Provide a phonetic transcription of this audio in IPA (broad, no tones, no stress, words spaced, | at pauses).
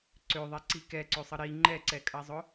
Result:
ǀøðˤɛǀi kɛǀøsˤə ɾi ŋ͡ǃɛǀɛkʼɐzˤʊ